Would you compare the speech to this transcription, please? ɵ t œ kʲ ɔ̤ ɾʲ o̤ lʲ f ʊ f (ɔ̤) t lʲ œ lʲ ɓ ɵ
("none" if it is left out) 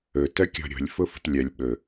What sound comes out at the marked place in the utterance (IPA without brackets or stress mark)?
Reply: o̤